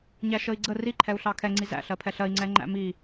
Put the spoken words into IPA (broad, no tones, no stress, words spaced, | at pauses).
ɲæʃəi̯ɡ͡ǀə riǃʰɛu̯ɬɑ kʰɛŋ͡ǀi zæ̰ɬɜpʰɛ ɬɜi̯ŋ͡ǀɛ ŋ͡ǃæ̰mi